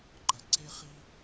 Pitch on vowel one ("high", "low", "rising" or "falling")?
low